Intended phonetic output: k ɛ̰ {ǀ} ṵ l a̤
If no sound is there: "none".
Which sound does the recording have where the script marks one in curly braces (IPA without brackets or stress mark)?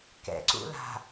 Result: ǀ